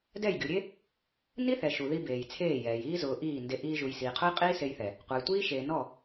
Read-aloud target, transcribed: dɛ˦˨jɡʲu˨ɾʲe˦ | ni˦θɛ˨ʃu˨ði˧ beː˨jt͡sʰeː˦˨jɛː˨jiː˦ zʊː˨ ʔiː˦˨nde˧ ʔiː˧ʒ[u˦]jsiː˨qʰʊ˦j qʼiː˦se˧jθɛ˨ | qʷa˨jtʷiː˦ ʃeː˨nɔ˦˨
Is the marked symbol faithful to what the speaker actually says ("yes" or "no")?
no